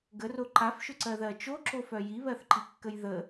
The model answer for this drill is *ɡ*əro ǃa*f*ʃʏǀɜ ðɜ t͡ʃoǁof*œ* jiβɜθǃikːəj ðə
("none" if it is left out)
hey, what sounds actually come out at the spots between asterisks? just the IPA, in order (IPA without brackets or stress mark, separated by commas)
ɡ, f, œ